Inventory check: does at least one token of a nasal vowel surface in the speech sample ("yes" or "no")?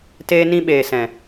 yes